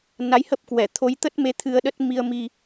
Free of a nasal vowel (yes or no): yes